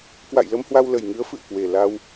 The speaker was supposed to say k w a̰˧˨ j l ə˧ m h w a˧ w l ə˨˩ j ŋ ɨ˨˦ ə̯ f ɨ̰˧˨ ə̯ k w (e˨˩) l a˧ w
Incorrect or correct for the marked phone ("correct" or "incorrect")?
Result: correct